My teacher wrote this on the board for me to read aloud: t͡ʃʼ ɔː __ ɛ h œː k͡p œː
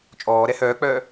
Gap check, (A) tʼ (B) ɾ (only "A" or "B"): B